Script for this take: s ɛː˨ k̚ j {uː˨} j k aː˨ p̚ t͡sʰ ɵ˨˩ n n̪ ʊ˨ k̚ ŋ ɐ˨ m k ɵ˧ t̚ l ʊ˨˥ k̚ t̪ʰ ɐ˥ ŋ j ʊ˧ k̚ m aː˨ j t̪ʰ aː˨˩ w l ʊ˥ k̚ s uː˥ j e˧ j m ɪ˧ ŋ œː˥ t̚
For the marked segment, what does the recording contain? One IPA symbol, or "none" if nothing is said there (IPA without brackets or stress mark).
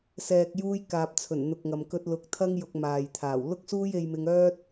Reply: uː˧